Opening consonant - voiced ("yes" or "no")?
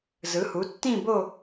yes